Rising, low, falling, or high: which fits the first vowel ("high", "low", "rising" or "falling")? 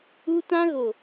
high